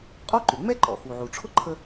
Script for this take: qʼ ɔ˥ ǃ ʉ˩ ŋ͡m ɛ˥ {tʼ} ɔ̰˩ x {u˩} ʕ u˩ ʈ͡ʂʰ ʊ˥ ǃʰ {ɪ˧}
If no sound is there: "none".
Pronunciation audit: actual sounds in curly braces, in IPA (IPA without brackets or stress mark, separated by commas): ǃ, u˩, ə˧